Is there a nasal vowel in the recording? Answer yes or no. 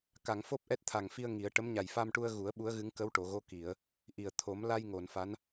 no